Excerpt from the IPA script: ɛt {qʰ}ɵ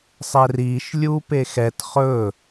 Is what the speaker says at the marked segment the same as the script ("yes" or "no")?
no